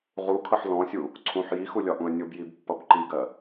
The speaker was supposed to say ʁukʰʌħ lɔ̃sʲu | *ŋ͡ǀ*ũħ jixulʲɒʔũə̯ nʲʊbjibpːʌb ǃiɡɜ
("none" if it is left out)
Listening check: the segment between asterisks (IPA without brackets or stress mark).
ǀʰ